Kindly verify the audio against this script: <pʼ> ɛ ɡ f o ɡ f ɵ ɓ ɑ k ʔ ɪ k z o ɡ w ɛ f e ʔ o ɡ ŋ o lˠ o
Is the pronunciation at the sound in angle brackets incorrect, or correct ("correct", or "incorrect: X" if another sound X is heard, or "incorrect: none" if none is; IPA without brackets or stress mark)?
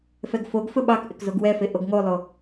incorrect: f